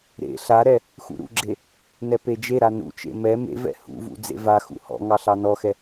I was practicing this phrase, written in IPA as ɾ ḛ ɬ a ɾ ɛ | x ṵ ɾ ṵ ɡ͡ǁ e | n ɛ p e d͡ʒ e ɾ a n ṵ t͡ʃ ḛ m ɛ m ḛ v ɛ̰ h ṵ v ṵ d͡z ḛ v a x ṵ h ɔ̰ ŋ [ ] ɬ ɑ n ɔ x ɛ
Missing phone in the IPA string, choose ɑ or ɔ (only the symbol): ɑ